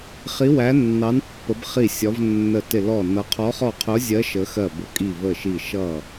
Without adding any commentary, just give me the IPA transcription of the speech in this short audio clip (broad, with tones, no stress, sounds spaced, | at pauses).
χ i˨˦ w æ˨˦ nː ɑ˨˦ n pː ə˨˦ b χ i˧˩ sʲ ɒ˨˦ v nː ə˧˩ t ɪ˧˩ l ɔ˧˩ n ʌ˨˦ qʰ ɔ˨˦ χ ɔ˧˩ qʰ ʊ˨˦ zʲ ɜ˨˦ ʃ ə˨˦ x ɜ˧˩ b ʊ˨˦ kʼ i˧˩ v ə˧˩ ʃ i˧˩ ʃ ʌ˧˩